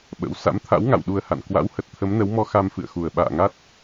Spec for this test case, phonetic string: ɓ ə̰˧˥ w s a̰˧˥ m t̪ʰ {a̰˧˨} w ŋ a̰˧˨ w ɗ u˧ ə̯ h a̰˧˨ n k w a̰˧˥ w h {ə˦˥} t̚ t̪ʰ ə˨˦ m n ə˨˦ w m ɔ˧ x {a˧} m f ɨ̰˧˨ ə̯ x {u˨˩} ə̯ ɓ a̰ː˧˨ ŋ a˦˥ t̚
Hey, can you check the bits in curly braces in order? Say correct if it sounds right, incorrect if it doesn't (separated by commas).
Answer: incorrect, incorrect, correct, correct